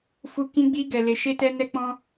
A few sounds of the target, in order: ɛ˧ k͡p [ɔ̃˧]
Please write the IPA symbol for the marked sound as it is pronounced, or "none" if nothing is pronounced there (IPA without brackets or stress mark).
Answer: ɔ̃˧